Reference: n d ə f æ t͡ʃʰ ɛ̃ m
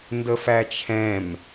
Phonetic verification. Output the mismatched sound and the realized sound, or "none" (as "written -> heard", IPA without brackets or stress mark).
none